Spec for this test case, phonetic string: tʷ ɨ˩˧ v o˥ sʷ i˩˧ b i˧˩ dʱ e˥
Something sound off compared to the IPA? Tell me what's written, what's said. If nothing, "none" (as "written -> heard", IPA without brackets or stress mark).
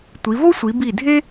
ɨ˩˧ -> i˩˧